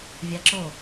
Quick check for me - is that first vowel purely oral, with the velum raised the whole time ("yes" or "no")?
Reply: yes